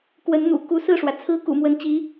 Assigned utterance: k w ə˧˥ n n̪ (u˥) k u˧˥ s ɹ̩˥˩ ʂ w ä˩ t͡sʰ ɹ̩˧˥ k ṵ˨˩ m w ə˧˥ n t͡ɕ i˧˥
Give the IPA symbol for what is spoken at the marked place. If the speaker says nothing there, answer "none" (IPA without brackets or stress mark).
ṵ˨˩